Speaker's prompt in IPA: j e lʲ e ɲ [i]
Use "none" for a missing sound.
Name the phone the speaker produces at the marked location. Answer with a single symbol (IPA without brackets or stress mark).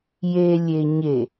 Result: e